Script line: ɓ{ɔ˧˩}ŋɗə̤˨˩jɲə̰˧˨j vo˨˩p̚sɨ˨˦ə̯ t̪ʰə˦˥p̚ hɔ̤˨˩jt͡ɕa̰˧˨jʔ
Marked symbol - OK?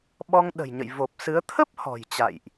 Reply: no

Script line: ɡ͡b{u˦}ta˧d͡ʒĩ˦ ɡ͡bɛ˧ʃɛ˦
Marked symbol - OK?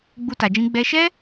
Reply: yes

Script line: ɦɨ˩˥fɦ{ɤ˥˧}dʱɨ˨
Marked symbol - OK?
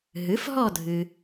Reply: no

